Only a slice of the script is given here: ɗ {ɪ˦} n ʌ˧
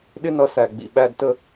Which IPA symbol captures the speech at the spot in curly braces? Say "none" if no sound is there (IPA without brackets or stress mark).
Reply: ɪ˦